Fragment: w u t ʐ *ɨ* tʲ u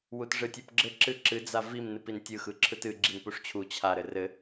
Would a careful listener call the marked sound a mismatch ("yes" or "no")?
no